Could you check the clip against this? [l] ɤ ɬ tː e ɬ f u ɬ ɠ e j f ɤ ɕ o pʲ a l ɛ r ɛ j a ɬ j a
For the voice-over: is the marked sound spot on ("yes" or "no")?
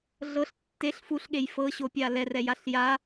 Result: no